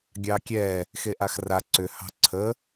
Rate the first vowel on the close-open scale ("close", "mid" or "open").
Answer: open